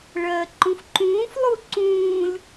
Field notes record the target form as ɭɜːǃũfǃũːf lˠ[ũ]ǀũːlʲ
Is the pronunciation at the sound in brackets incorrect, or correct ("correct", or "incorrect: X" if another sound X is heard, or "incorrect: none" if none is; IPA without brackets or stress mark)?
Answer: incorrect: u